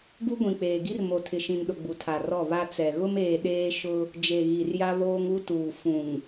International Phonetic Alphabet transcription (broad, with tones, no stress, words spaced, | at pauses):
ɡu˦ɡʷĩ˨k͡peː˨ɡi˦r mo˨tʰɪ˨ʃĩ˨nɗʊ˨ ɡ͡bu˨tʰa˨rɔ˦˨ βa˦ t͡sɛ˨ ɣʊ˦meː˨ ɗeː˦ʃʊ˦ | d͡ʒe˨ ɣi˨rja˦βoː˦ŋ u˦tuː˨ fũ˨ŋ